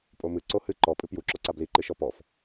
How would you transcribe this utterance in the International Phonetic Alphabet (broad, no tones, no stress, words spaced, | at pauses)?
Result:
pʼomɨ ǀohɨ ǃɔ pʼɨpju ǁɔǀabli ǃɨʃɔpɔf